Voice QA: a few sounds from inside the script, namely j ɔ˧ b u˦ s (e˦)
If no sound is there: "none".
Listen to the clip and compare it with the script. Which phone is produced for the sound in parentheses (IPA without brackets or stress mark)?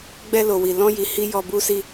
i˦